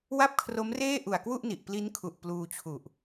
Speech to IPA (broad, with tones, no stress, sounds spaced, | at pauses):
w a˥˩ p̚ kʰ r o˦˥ m r eː˥˩ ʔ u˨˩ a̯ k w u˥˩ ʔ n i˨˩ ʔ p l i˦˥ n kʰ u˨˩ ʔ p l uː˧ t͡ɕʰ u˨˩ ʔ